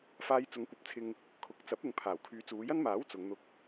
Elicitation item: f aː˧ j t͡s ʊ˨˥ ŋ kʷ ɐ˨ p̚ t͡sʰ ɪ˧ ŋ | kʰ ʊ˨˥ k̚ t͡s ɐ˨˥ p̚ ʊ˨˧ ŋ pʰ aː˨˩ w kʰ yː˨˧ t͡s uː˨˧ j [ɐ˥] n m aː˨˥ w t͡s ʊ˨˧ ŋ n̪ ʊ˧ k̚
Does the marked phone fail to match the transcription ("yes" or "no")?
no